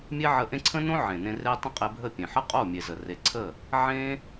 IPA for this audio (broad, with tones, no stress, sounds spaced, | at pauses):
mʲ e˦ ʕ ə˧ ʔ ẽ˦ ǀʰ ə̃˦ n õ˦ ʕ ẽ˨ n ẽ˧ r e˦ tˤ ə̃˦ qʼ e˧ bʱ ə˦˨ pʲ ẽ˨ ħ ə˦ qʼ o˦˨ mʲ e˨ z ə˨ r e˨ ǀʰ ə˦˨ | ʕ ẽ˦